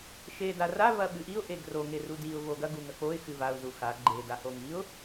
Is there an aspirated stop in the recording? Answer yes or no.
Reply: no